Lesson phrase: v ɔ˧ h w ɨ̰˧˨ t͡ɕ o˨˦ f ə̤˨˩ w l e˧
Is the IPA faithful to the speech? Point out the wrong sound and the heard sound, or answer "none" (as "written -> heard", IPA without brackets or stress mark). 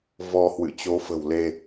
none